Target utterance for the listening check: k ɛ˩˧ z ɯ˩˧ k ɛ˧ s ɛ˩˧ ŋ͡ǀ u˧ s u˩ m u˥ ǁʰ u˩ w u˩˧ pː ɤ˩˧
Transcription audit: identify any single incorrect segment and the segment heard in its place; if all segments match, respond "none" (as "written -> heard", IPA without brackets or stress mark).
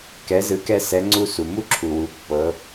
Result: none